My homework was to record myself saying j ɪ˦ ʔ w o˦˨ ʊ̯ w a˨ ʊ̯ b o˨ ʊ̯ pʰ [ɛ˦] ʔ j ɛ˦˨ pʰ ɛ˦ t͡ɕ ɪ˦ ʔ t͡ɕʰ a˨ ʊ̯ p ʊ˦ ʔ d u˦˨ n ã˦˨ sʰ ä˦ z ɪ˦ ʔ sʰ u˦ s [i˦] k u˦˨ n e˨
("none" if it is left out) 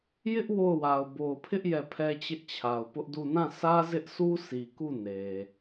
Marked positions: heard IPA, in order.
ɪ˦, i˨

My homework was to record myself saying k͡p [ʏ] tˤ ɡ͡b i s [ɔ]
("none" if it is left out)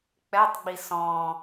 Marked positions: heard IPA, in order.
ɛ, ɔ̃

